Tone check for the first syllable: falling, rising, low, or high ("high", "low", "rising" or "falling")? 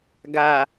low